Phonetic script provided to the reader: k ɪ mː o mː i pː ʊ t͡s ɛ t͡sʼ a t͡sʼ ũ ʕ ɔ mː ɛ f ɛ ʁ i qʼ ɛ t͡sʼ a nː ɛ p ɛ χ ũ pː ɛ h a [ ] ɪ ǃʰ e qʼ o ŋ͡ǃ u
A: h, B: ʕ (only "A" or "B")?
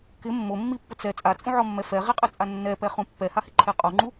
A